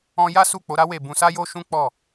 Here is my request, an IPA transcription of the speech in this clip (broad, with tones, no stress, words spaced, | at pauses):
ɔ̃˧ ja˦su˦˨k͡po˨˦ɾa˦ we˦˨ bũ˧sa˦jo˦ ʃũ˦ k͡pɔ˦˨